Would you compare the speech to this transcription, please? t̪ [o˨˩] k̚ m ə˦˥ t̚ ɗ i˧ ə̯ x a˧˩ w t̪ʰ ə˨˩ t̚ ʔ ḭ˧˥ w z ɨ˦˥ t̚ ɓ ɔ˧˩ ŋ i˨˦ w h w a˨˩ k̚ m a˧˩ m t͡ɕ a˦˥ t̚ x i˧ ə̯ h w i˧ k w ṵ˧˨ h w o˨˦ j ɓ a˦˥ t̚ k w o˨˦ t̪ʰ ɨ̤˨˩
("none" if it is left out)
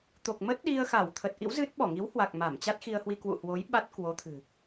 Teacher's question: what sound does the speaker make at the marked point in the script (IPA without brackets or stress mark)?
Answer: o˨˩